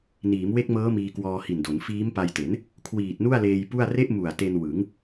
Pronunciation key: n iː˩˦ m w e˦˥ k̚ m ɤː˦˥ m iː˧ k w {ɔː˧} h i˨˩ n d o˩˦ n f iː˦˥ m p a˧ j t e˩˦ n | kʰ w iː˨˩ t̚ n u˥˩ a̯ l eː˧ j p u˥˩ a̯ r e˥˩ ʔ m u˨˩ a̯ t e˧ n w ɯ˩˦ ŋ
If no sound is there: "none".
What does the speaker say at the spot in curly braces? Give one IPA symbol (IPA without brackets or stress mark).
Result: ɔː˧